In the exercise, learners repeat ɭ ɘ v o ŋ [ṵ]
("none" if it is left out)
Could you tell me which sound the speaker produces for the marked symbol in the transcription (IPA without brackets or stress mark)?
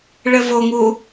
u